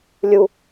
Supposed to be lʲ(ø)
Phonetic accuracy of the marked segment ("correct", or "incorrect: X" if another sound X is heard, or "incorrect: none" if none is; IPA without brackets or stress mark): incorrect: u